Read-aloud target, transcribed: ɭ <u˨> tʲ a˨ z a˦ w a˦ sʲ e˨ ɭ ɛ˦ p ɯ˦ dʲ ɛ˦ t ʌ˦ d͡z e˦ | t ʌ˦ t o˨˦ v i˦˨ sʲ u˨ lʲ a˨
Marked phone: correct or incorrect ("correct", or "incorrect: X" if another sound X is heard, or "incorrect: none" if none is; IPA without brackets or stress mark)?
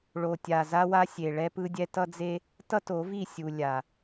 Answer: incorrect: o˨